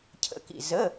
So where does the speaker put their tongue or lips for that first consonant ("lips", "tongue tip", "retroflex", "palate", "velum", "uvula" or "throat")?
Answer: palate